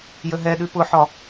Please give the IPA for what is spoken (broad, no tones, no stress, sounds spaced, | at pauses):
j ə ɦ ɛ ɗ ʉ p ʊ ħ ɒ